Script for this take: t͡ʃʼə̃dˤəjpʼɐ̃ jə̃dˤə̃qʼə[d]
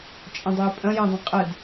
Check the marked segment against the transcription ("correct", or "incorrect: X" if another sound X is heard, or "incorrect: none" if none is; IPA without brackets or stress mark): correct